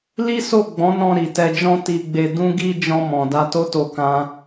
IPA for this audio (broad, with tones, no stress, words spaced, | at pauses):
li˦so˦˨ɡ͡bɔ̃˨˦nɔ̃˧ ɾi˨tɛ˧d͡ʒɔ̃˦ ti˧ɡ͡be˧ dũ˦ɡi˦ d͡ʒɔ̃˧mɔ̃˨ da˧to˦to˧ kã˦